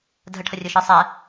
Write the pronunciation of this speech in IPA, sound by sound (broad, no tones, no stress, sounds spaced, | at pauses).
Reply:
dʱ ə ʈʰ ə rʲ ɯ ʃ ɯ sˤ ɛ